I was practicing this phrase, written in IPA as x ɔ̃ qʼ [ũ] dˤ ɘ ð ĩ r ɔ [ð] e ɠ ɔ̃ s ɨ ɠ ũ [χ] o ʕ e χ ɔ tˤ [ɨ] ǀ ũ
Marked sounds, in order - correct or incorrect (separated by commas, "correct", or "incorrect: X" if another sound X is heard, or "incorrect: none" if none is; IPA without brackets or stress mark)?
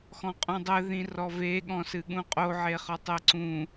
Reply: correct, incorrect: v, incorrect: qʼ, incorrect: e